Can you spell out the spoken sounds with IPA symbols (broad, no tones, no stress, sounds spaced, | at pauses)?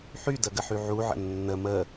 ħ y d ə ɡ ə ħ y ʕ u ʕ ə̰ nː ə m ə